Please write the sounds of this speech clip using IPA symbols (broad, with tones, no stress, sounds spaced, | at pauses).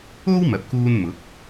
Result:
o˥ w m ɐ˧ p̚ k uː˥ n m ʊ˨˥ k̚